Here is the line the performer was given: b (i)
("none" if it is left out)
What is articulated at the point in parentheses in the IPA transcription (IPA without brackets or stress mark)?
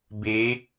e